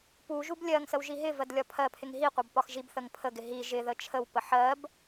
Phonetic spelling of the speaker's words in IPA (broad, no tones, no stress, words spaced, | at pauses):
puʒub lʲɜŋsəw ʒiɦɪvɜd lʲɒpʰɜpʰɪŋ ɦiqʷɑb pɒxʒibθəŋ pʰəɡɪ ɦi ʒɪ ðət͡ʃʰəwpə ħɜb